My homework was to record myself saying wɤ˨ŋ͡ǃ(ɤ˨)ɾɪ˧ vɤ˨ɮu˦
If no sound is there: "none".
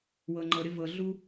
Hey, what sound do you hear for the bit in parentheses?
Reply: ɤ˨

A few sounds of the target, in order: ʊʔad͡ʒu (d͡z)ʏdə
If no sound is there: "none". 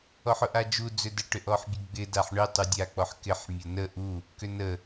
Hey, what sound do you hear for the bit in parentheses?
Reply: d͡z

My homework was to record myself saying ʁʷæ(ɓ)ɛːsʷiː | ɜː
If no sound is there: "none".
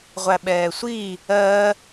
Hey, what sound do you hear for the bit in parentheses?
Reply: ɓ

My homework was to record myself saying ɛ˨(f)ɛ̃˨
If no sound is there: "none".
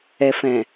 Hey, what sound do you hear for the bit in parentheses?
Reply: f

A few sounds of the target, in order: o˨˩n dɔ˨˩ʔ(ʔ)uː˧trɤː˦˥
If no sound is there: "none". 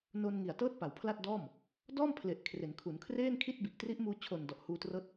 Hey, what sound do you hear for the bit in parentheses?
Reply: h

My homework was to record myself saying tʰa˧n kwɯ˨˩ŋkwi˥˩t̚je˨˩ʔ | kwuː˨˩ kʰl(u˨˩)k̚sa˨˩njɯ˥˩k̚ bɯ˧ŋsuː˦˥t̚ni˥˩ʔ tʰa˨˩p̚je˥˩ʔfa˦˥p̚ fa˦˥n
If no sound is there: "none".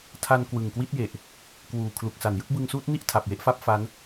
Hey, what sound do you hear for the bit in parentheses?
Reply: u˨˩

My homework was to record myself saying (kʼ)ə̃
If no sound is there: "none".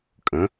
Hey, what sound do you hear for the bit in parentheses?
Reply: kʼ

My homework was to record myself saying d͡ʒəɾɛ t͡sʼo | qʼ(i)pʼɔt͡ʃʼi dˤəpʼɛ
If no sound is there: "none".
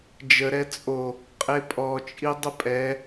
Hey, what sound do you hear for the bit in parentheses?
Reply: e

